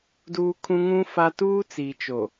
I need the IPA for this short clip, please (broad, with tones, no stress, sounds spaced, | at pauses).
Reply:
d uː˦ kʰ ũ˦ ŋ ũ˦ f a˦ t uː˦ t͡s i˨ t͡ʃ o˨